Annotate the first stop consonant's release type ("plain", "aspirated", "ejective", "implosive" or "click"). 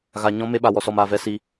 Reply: implosive